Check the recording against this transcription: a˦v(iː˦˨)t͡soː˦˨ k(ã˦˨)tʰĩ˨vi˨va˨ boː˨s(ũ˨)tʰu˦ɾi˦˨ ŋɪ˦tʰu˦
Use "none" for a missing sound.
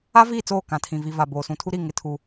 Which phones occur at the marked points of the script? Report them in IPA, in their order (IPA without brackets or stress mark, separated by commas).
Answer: iː˦˨, ã˨, ũ˨